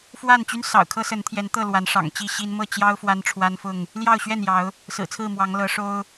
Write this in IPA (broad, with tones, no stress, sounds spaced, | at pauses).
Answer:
f w a˥˨ n t͡ɕ y˦ n s ɑ̰˨˩ ʊ̯ kʰ ɤ˦ s ə˨˦ n t̪ʰ j ɛ˨˦ n t̪ ɤ˥˨ l w a˨˦ n ʂ ɑ̰˨˩ ŋ t͡ɕ i˥˨ ɕ i˦ n m ɤ˥˨ t͡ɕ j ɑ˦ ʊ̯ f w a˦ n ʈ͡ʂʰ w a˦ n f ʊ˥˨ ŋ | l j ɑ˥˨ ʊ̯ ɕ ɥ ɛ˥˨ n j ɑ˨˦ ʊ̯ | s ɹ̩˨˩ t͡sʰ ɹ̩˥˨ m w ɑ˨˦ ŋ l ɤ˨˦ ʂ o˦ ʊ̯